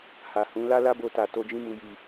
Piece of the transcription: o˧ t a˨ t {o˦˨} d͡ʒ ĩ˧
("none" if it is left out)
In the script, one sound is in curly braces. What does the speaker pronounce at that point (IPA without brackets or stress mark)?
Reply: o˧